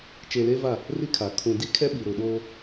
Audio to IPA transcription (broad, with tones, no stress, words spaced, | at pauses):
t͡ʃe˨le˦ va˦˨ | ri˦kʰa˨ kʰũ˨ di˦kʰɛ˦ɓi˨ ɾʊ˨ɗoː˦